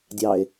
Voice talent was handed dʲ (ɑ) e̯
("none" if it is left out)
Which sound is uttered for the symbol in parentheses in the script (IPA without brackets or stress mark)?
ɑ